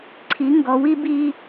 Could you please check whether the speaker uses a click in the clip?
yes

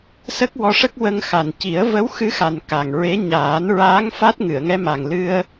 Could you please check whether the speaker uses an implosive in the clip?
no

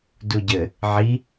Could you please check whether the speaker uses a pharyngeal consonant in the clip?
yes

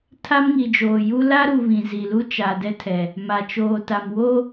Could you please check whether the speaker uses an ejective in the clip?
no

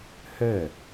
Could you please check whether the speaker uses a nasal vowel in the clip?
no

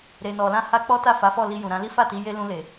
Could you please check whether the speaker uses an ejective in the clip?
no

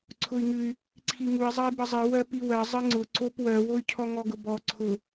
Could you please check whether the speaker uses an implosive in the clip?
no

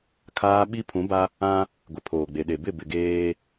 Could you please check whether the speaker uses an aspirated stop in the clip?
yes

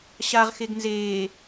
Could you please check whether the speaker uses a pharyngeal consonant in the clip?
no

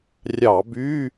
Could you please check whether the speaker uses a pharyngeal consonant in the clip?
no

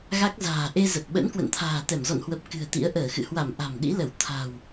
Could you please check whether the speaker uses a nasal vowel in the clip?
no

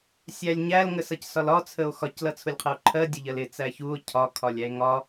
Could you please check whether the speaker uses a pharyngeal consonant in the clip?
no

